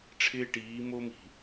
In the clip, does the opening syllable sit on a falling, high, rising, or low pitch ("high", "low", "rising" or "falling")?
high